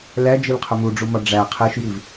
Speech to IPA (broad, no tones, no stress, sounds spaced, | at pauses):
l æ d͡ʒ i l qʰ u m u ɖ͡ʐ u m ɒ ɖ͡ʐ æ qʰ e ʃ j i v